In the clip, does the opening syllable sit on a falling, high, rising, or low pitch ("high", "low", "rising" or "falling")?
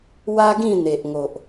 high